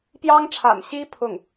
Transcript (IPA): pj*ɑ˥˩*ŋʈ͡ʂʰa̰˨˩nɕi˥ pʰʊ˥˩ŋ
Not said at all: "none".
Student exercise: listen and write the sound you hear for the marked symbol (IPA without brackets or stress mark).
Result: ɑ˥